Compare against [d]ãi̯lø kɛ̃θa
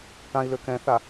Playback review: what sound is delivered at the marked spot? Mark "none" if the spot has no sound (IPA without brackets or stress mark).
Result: ʈ